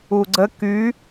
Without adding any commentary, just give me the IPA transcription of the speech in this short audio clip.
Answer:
uɡ͡ǀə ky

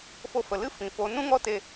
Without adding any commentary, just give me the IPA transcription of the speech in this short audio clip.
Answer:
fo˧fə˨lɨ˦ fĩ˧fo˦ nũ˦ŋɔ˦ te˧

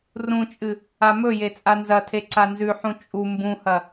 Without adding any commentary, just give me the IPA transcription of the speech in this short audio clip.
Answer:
rũt͡ʃʼɨ | amɵje t͡sʼanzɐtʰe ǀanzʉħũ t͡ʃʼu mbũhɐ

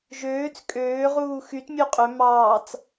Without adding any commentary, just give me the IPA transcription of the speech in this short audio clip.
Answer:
ʒøːt͡s kʼøːʁuː xyt mʲuqʼø mɑːt͡s

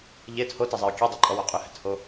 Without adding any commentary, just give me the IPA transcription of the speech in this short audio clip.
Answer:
ʎet hotɛzˤeʊ̯ kʲedˤɛǃʼɔwo qʼʏhɛ̤tho

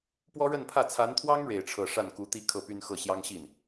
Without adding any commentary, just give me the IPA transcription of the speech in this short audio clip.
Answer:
pwɔ˥ɻə˥˧npʰä˥˩ t͡sʰa˧˥nt̪ʰwɑ˥ŋ ɻe˥˧ɪ̯ʈ͡ʂʰɤ˥˧ ʂa˥˩nku˧˥t̪i˥ kʰɤ˥˩py˥nxɤ˥˩ ɕjɑ˥ŋɕi˥˩n

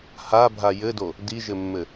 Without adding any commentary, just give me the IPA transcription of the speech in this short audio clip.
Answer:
habʱa jɘdo | diʒɘmːɘ

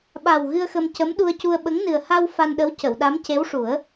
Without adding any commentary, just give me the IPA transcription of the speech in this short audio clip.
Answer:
ɓa˨˩w ɣɨ˧ə̯xə˧m cə˧˥mɗu˧ə̯cu˧ə̯ ɓə˧˥ŋ nɨ˨˩ə̯ ha˧w fa˧nɗə˧˥w cə˨˩˨wɗa˧˥mce˧˥wʂu˨˩˦ə̯

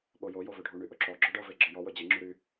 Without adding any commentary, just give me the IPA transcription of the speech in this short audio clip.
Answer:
ɓojo jovɵɖʱu ɳyʔɵǁɔ ɡ͡ǁɔɖɤve ɡ͡ǁɤjɔ wɵd͡ʑeŋ͡ǁy ɾy

